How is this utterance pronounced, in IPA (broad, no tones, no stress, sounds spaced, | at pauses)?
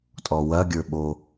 tʼ ɔ w ɐ ɡʲ ə˞ ɓ o